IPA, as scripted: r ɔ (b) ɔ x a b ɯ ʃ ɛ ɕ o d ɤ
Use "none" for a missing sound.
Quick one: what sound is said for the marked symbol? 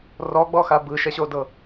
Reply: ɡ͡b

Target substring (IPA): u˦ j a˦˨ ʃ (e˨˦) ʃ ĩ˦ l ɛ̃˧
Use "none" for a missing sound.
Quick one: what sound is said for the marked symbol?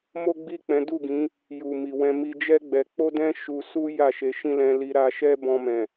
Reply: e˨˦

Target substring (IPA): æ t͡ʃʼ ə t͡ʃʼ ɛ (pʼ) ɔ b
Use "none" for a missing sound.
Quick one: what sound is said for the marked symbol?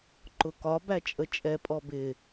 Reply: pʼ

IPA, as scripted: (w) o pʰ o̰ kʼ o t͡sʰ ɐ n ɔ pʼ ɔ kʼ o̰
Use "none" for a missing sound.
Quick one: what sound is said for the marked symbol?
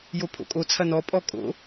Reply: j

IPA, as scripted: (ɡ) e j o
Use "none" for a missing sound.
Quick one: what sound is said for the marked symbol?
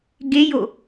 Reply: ɡ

